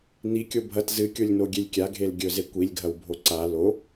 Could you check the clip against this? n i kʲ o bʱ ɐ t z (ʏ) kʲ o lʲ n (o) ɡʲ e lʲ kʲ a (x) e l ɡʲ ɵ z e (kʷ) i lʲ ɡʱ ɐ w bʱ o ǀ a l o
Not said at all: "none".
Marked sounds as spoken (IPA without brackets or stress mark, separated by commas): ɨ, o, ɡʱ, kʷ